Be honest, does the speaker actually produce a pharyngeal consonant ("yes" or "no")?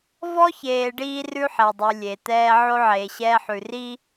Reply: yes